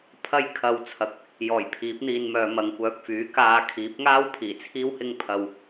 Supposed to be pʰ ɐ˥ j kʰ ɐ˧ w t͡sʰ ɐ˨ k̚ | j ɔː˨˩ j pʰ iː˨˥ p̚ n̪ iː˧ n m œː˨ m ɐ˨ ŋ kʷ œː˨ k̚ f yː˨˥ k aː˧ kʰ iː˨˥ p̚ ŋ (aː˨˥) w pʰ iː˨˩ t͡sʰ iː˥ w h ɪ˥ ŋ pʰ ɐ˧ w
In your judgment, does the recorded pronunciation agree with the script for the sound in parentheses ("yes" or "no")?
no